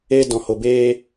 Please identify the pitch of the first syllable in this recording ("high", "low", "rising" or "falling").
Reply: high